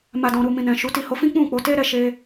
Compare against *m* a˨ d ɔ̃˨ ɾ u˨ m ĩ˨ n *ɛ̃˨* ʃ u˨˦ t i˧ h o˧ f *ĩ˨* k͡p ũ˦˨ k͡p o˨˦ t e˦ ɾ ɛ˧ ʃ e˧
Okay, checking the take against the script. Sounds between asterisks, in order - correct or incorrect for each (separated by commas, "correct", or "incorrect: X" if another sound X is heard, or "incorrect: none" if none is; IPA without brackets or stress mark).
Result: correct, correct, incorrect: ĩ˦